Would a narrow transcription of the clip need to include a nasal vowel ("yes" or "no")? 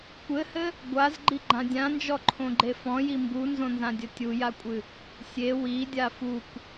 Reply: yes